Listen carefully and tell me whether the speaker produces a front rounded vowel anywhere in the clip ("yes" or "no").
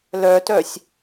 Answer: yes